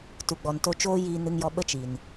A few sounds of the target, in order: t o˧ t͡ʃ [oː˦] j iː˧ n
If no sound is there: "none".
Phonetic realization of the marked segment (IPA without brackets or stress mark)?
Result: oː˦